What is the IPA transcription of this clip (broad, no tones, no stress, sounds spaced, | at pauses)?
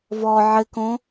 v ɔ ʕ ɘ k õ